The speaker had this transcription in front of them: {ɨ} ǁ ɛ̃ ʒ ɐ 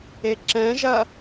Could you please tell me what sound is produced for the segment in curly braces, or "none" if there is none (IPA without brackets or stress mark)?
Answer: e